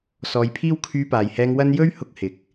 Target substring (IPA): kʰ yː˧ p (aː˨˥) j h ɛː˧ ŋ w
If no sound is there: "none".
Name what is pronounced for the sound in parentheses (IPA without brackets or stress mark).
aː˨